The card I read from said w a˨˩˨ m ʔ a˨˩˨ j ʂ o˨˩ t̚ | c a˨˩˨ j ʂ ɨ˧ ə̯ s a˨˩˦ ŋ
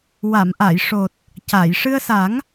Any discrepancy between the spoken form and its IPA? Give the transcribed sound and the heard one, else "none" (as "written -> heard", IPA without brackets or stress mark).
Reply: none